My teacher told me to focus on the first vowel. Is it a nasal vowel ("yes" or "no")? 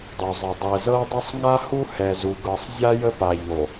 no